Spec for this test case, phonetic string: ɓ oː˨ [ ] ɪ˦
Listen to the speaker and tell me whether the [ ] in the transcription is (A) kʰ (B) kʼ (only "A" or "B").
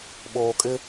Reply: B